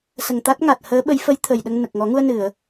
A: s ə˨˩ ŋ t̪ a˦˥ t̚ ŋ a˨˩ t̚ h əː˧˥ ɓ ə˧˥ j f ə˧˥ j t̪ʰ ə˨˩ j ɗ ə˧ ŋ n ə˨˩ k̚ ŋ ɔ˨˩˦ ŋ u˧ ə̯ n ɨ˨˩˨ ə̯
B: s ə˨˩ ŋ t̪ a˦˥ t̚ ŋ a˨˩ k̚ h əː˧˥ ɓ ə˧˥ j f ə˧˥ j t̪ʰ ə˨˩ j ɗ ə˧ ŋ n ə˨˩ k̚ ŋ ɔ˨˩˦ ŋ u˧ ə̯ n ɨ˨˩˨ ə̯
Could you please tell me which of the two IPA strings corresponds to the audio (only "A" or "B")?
A